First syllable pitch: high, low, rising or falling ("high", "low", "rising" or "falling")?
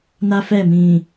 high